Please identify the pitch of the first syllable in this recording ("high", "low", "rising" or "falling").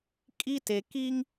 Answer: high